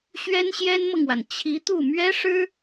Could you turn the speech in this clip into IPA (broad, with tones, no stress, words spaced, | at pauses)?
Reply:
ɕɥɛ˥nɕjɛ˥nmɤ˨ŋwa˩n t͡ɕʰi˧˥t̪u˥˩ mɥɛ˥ʂɻ̩˥